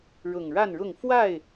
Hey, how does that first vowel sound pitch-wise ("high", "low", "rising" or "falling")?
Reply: low